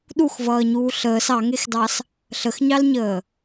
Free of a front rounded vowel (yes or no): yes